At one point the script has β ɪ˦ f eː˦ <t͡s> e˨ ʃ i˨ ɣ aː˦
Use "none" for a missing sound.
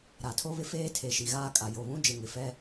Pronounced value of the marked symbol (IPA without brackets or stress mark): tʰ